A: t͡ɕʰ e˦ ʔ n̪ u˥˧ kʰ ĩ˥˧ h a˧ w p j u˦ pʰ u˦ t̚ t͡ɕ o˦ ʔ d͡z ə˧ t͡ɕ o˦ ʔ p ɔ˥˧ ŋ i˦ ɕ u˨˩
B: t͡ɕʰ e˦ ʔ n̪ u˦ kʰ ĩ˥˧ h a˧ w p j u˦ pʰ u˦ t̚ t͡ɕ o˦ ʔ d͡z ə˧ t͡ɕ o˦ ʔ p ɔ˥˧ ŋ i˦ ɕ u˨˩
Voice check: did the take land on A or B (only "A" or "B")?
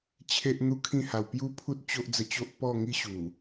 B